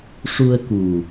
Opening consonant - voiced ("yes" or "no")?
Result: no